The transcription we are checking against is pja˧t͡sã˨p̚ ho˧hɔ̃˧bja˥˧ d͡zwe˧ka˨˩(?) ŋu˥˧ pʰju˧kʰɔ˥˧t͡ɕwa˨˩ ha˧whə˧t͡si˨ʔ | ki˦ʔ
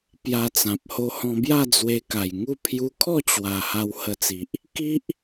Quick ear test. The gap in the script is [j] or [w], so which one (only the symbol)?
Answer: j